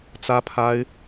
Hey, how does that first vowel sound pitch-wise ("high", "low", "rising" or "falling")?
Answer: high